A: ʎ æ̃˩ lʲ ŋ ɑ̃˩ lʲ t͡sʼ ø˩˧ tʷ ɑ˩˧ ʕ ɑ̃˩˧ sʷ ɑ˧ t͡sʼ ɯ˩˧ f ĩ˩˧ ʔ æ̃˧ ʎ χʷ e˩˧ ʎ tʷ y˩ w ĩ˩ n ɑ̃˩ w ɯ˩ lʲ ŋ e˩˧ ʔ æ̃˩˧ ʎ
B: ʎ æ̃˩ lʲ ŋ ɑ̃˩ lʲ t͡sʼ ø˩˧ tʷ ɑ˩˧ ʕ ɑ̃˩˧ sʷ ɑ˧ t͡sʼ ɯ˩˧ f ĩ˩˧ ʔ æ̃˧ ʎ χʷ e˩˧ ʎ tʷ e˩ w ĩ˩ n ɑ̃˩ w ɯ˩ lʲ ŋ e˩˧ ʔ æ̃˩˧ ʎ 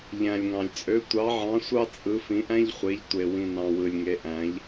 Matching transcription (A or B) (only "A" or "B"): B